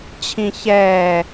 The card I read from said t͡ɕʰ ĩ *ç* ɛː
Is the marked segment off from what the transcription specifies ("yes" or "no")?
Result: no